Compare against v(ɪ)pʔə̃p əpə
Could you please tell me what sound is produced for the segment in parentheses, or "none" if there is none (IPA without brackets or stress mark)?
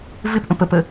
ɪ